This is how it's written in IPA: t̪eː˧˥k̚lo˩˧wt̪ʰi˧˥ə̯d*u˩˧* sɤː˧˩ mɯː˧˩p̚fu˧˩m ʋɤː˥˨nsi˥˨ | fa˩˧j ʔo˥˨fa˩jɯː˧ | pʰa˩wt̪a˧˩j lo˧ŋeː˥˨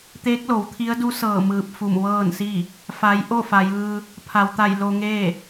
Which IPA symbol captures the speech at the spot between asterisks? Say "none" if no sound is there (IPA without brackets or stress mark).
u˧˥